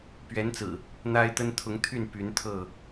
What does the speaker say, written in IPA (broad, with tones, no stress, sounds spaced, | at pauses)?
p ɥ ɛ˨˦ n t͡s ɹ̩˨˩ | n̪ a˦ ɪ̯ t̪ ə˦ n t̪ʰ ʊ˨˦ ŋ t̪ʰ y˥˨ n p y˨˦ n t̪ʰ ɤ˥˨